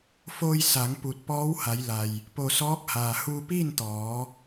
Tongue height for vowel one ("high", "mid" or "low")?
mid